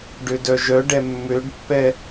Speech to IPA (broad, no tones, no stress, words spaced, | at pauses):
ɖødœʒœɖɛ mːøɖpːɛ